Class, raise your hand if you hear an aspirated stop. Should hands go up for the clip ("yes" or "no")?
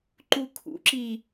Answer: yes